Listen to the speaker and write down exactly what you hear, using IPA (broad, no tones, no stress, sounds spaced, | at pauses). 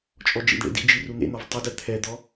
t͡ʃʼ ɔ d͡ʒ ḭ d ɳ ḛ d ḭ d͡ʒ i r u n̪ ḛ n̪ ɒ v tˤ u d ɛ t̪ʰ ɛ d̪ ɔ